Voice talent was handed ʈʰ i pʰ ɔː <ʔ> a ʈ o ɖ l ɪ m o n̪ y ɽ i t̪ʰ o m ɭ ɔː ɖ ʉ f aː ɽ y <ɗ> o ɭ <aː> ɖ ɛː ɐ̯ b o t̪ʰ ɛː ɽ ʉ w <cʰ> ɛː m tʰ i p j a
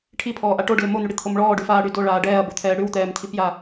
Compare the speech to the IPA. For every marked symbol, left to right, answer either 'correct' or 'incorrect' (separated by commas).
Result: correct, incorrect, correct, incorrect